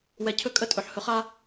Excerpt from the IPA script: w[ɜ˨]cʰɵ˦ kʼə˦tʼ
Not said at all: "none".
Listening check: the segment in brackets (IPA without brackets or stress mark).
ɛ˨